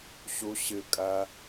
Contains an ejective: yes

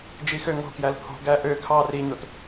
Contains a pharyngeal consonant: no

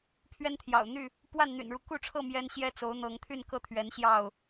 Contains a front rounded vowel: yes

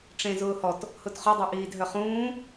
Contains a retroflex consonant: yes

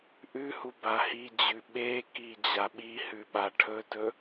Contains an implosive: yes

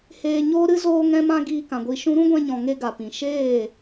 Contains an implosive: no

